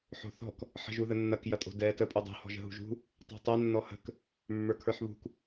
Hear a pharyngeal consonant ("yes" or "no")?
yes